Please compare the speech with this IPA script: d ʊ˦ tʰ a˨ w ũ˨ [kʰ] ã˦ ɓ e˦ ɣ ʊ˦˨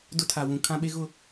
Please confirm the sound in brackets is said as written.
yes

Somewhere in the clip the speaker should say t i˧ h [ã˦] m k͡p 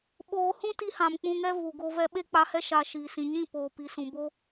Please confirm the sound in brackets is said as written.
no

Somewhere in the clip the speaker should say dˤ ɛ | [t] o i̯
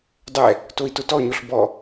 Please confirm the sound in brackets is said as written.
yes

